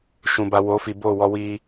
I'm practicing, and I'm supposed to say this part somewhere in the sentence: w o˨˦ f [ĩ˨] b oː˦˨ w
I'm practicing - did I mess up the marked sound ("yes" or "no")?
yes